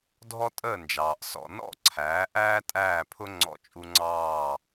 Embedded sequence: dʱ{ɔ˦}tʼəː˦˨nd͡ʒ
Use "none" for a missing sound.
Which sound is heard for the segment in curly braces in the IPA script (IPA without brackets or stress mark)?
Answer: ɔ˦